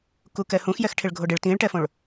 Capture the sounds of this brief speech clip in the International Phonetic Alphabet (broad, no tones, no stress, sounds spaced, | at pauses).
k u k ɛ h ũ x j ɛ x ʈʰ ɪ ɭ ɡʱ o ɖ ɪ ɭ t ĩ ɭ ʈ ɛ f õ ɭ